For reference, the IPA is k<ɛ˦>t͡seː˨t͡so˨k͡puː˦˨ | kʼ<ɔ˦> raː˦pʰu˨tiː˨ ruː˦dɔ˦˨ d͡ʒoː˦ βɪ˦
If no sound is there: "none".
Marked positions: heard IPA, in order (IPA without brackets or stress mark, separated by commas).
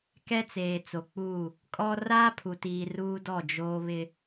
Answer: ɛ˦, ɔ˦